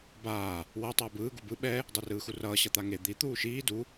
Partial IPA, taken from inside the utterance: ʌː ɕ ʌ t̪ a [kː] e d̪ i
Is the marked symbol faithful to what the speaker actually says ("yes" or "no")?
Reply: no